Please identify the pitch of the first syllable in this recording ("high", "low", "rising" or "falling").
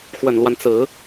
low